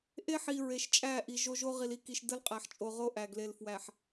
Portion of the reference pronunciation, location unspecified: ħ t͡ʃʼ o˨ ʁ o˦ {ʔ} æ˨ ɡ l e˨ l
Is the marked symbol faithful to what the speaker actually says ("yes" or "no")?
yes